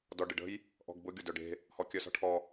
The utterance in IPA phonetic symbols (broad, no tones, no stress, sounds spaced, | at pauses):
d ɔ ɖ ɨ ɖ ə̤ j | ʔ ɔ̤ ɡ b ʊ ɡʲ ʊ d œ ɖ e̤ | h ɔ kʲ œ s ɔ̤ ʈʰ ɔ